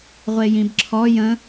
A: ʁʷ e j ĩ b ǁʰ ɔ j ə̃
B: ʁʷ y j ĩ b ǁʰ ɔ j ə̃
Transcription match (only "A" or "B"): A